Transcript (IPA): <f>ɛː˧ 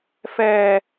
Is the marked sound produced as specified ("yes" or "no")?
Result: yes